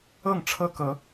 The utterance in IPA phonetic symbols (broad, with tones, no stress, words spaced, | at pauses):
ɤ˥˩ŋʈ͡ʂʰɤ˥ kɤ˧˥